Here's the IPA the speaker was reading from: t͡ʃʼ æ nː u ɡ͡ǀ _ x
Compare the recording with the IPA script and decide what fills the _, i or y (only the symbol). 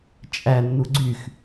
y